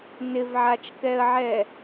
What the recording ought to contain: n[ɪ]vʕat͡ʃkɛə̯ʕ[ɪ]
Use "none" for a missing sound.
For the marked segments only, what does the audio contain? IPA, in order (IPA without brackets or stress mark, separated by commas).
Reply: ɪ, ɛ